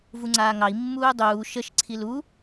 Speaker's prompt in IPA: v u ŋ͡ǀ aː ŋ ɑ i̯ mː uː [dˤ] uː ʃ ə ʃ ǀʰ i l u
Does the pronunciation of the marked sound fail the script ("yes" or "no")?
no